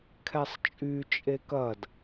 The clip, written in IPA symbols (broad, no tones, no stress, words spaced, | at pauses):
kʰɛsˤt͡ʃʼy t͡ʃʼekɐd